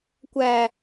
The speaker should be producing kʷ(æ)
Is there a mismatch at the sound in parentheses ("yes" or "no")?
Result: no